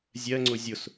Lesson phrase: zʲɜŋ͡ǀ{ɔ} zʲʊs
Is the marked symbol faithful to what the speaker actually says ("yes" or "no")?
no